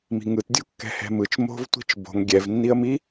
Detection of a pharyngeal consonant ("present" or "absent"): absent